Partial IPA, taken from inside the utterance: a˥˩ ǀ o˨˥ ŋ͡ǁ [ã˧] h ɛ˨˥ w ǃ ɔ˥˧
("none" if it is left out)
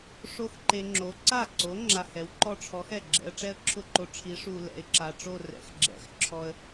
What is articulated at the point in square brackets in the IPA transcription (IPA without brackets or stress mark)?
a˧